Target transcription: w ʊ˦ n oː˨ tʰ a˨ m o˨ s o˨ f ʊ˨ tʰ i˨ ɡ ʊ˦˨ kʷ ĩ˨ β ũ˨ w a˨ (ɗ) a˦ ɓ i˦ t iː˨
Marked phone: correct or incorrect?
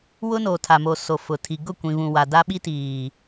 incorrect